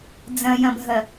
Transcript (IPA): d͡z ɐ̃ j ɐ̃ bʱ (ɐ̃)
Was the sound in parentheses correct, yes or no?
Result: no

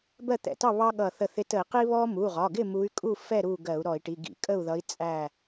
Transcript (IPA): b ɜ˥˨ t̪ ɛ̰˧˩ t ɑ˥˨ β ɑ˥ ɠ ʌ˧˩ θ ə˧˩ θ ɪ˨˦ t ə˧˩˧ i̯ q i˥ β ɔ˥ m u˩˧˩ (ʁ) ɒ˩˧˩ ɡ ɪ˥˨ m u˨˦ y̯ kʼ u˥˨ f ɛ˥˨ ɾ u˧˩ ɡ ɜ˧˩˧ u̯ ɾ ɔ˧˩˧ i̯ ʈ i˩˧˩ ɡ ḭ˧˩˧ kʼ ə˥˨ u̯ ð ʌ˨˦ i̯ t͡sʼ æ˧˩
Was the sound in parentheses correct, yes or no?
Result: yes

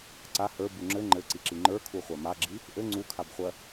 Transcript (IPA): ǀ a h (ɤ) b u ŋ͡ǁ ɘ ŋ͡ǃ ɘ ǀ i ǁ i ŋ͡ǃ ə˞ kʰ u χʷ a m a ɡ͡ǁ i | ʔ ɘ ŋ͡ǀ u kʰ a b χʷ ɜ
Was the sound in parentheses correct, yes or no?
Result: no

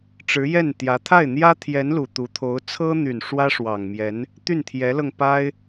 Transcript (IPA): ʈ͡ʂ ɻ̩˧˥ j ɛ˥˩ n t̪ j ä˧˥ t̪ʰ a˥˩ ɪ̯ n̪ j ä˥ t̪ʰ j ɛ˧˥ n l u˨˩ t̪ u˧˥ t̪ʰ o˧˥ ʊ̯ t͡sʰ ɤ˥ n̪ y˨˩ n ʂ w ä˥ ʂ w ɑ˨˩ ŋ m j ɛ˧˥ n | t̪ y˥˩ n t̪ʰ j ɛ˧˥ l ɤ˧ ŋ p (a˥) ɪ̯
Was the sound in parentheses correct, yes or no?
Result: yes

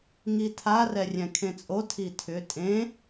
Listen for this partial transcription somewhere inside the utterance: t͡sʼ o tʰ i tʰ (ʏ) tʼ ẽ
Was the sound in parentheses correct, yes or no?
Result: yes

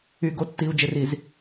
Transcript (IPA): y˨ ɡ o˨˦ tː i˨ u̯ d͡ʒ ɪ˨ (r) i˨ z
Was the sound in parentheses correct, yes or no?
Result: yes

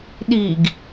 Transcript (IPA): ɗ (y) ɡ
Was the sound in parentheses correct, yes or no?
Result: no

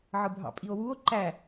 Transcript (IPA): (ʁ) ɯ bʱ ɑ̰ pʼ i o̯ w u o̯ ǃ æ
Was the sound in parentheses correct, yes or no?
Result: no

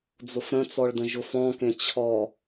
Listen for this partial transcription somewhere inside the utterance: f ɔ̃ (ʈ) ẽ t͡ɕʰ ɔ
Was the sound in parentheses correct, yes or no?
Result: no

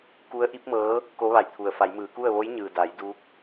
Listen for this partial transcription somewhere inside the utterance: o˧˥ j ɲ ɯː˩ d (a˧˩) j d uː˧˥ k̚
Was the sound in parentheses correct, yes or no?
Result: no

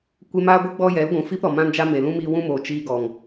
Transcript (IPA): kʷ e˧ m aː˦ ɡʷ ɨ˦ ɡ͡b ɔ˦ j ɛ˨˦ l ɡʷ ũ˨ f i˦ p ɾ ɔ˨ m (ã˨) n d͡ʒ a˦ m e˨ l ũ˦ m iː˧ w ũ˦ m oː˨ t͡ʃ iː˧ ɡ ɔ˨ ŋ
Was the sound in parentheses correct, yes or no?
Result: no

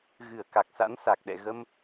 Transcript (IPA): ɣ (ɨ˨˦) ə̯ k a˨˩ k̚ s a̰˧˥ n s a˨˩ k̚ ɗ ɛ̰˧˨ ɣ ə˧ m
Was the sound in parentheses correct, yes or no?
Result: no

